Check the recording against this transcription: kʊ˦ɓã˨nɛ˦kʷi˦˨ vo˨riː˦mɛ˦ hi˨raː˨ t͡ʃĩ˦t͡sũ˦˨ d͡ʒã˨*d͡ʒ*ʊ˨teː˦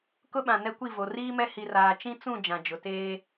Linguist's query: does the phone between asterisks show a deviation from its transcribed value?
no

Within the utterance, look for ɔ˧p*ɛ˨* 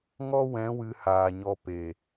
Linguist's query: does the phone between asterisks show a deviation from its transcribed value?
yes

